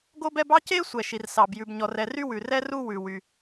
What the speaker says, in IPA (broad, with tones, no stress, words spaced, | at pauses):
ɡo˥bɛ˥b ɑ˥ce˥ sʷɛ˩ʃi˩rsɑ˩b jʉ˩bɲɔ˩rɛ˩ ry˥wʉ˩rɛ˥ ru˥ wʉ˩ wy˩